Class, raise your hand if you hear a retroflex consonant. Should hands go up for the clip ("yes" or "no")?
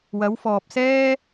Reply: no